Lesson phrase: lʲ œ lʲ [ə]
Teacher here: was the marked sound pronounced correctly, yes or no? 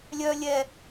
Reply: no